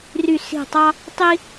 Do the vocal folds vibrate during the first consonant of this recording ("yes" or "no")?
yes